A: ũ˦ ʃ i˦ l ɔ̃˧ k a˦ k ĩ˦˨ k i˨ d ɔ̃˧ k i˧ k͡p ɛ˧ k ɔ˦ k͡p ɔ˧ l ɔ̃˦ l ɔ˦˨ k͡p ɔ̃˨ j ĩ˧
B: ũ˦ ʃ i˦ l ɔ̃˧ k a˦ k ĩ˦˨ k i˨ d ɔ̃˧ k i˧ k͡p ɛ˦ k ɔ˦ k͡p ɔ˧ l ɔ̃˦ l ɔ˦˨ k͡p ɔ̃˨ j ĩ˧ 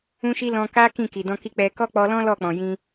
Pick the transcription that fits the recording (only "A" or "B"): A